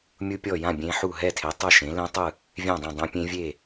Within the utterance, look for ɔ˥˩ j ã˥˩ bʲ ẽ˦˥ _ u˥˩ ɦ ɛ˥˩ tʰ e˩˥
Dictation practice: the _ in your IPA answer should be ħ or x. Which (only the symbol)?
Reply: ħ